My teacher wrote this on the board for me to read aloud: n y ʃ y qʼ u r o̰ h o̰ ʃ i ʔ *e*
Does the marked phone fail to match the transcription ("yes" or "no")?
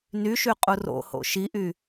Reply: yes